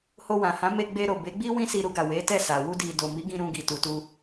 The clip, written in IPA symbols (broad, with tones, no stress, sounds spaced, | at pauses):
h o˧ w ã˨ h ã˨˦ m e˧ ɡ͡b e˧ ɾ o˨ b e˨˦ ɡ͡b i˦ w ĩ˦ s i˧ ɾ u˧ ɡ a˨ w e˨˦ t ɛ˦˨ s a˨ w u˧ d i˨ d o˨ m i˨˦ ɡ ĩ˧ ɾ ũ˧ ɡ i˨ t u˨ t u˧